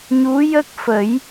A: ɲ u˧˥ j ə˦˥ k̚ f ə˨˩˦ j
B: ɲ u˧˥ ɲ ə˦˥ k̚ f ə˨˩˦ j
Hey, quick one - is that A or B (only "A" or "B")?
A